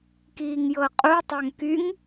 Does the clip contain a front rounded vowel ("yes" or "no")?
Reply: yes